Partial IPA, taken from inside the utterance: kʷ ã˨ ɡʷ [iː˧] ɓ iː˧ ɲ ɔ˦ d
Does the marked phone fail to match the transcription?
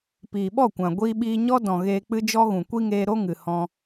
no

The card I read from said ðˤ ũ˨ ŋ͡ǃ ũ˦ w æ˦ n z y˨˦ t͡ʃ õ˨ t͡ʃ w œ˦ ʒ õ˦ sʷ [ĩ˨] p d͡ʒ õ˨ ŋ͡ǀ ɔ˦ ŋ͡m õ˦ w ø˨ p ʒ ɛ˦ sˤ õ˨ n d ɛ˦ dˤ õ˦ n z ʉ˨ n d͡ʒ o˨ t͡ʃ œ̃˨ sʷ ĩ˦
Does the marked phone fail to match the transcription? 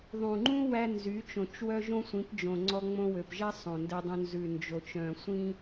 yes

